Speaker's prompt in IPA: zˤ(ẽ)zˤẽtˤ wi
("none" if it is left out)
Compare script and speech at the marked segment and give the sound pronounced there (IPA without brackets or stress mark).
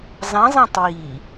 ɛ̃